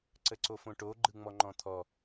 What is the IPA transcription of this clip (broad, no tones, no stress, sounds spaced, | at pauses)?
ǀ ə ǀ o f õ ʈ o ɡ͡ǃ ɯ ŋ͡m ɔ ŋ͡ǃ ɔ̃ t̪ʰ ɔ